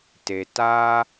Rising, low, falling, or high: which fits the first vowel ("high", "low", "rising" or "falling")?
low